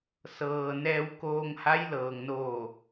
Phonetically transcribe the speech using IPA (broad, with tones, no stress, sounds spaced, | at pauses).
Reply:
s ɤː˩ n ɛː˧ w k oː˧ ŋ h a˧˥ j l ɤː˩ ŋ n oː˧˩